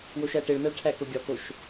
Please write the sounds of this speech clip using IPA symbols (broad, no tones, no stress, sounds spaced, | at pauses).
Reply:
w o ʃ æ ʈ e ɭ n æ ɭ ʈʰ æ k o ɡʲ ɒ k o ʃ